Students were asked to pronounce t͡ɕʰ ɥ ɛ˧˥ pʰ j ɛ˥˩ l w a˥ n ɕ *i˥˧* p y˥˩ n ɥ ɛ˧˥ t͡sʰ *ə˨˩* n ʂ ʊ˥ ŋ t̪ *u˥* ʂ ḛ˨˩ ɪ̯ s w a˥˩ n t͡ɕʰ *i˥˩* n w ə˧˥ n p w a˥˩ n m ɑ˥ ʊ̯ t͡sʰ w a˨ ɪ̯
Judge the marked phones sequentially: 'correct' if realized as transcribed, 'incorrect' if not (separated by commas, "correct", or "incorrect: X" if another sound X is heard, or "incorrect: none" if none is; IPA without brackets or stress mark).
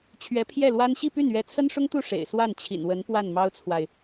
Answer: correct, incorrect: ə˥, incorrect: u˥˩, incorrect: ḭ˨˩